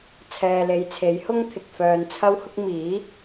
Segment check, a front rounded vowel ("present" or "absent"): present